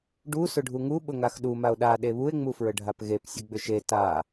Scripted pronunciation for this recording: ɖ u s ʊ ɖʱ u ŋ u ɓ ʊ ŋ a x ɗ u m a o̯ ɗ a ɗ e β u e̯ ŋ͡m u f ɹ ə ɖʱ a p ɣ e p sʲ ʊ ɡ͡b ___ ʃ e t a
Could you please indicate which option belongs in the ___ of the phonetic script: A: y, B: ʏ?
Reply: B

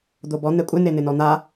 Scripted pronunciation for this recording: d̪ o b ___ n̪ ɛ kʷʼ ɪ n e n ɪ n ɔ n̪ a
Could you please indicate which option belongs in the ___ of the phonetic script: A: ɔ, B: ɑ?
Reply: A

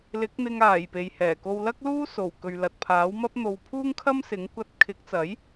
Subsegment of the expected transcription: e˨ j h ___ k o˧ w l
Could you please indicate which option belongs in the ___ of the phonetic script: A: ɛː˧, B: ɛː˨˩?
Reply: B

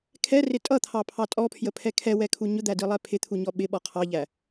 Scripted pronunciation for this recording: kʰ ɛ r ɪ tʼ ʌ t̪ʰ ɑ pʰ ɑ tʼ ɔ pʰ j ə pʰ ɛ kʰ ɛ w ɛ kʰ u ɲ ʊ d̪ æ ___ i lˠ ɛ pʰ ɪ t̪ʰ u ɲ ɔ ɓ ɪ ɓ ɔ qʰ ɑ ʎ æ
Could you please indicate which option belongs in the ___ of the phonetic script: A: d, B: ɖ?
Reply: A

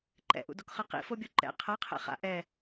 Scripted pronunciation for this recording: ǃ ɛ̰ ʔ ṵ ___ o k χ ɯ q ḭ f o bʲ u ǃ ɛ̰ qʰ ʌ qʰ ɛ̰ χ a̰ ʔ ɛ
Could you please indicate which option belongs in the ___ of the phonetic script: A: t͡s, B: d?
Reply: B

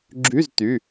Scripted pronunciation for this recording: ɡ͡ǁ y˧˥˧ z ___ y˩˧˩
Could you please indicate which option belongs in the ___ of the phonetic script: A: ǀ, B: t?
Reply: B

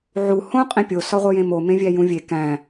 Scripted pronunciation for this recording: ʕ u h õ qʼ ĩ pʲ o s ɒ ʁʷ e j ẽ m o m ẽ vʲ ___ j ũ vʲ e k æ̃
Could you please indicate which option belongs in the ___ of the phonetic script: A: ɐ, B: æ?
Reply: B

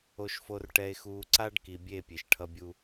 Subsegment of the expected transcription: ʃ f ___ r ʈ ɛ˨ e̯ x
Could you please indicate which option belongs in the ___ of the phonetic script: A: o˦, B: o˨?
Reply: B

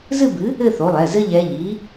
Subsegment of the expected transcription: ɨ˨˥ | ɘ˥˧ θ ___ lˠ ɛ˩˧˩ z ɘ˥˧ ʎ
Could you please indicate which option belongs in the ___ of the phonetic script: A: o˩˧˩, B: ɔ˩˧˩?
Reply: A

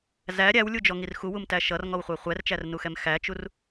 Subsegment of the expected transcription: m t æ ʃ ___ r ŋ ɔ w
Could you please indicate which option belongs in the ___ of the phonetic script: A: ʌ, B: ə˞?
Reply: A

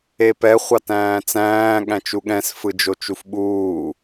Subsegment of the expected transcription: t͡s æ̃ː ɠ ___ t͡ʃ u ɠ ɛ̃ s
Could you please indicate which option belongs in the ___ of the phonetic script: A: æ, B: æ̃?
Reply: B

